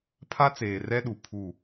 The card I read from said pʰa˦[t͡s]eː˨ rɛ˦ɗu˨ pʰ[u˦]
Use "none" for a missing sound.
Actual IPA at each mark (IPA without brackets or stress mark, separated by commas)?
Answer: t͡s, u˦˨